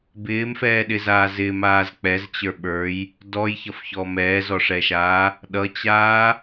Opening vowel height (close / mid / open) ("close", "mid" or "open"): close